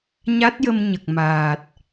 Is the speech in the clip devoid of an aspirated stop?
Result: yes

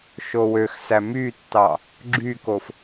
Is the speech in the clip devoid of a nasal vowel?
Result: yes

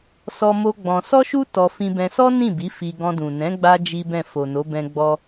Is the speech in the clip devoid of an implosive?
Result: yes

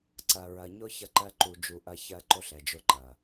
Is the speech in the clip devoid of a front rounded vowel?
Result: yes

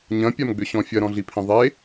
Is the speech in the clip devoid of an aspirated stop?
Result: no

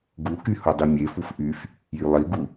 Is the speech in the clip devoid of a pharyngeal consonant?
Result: yes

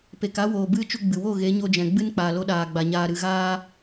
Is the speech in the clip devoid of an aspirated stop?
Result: yes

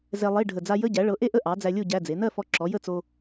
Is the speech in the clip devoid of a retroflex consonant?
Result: no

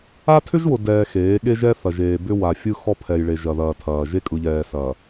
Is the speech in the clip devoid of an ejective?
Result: no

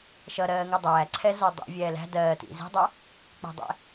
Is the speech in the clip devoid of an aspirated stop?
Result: no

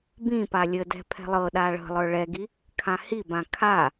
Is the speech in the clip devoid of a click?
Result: yes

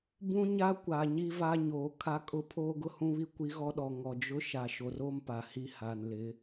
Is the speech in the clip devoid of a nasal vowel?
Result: no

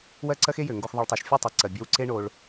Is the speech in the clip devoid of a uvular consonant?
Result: yes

